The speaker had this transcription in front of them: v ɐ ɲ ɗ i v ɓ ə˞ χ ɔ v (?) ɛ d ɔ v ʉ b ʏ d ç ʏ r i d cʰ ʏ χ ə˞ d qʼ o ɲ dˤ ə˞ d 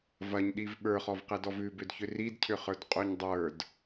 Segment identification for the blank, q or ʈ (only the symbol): q